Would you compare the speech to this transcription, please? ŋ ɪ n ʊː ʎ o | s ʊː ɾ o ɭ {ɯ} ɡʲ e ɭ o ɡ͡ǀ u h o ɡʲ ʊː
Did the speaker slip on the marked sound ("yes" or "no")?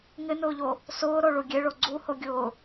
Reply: yes